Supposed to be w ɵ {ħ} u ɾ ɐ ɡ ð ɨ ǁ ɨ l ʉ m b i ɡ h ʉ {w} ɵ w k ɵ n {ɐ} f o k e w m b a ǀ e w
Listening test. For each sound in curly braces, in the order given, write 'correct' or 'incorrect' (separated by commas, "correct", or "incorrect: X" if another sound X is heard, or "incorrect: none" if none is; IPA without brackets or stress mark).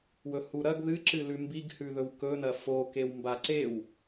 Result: incorrect: h, incorrect: ð, correct